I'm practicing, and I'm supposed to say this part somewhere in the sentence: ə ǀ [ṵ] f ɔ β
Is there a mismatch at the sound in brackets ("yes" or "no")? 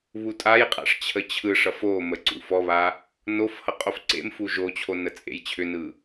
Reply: no